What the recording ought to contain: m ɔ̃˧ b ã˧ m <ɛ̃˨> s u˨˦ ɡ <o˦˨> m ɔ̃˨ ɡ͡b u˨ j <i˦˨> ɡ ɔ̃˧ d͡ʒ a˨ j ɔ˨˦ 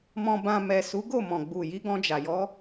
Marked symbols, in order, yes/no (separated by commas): no, yes, no